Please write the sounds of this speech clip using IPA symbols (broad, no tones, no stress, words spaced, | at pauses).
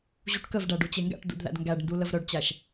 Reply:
ʑuʈkəvɖæ ɖut͡ɕeŋɡæ̰ʈdṵd ðæ̰dŋɡæɖndu ləvɾœɖt͡ɕæʃ